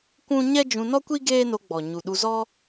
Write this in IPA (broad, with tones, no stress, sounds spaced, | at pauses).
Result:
kʷ ũ˦ ɲ ɛ˦ d͡ʒ ũ˧ n ɔ˦ kʷ i˦ ɡ eː˦ n o˧ ɡ͡b ɔ˨ ɲ u˨ ɗ u˧ z ɔ˦